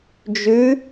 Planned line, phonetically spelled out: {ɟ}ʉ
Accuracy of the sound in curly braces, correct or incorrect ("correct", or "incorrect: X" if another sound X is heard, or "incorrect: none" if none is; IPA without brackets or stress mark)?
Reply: incorrect: d͡ʒ